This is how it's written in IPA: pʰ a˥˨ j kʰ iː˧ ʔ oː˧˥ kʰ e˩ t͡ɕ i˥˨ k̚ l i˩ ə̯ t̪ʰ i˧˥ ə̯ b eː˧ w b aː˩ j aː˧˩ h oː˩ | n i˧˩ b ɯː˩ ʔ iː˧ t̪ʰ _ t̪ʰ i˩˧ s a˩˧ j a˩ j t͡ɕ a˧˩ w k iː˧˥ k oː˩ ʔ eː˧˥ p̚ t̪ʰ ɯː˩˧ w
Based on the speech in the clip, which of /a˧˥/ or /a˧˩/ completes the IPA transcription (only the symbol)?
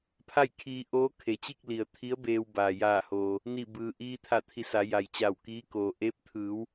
a˧˩